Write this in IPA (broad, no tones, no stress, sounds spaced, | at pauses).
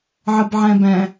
ʕ ə b ʕ æ̃ b æ̃